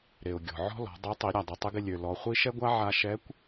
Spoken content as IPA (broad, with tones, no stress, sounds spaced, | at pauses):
ɾ e˩ ʊ̯ ɡʲ ɔ̤˩ ʕ ɔ̤˥ l ɔ̤˩˧ dˤ e˧˥ tˤ i˩˧ ɾʲ a˩ dˤ ɪ˩˧ tˤ ɪ˧˥ ɡ ɪ˧ lʲ ø˩ l ɔ˩˧ χʷ i˥ ʃ ɛ˥ ɡʷ a˥ ʕ a˧ ʃ ɛ˧˥ kʷ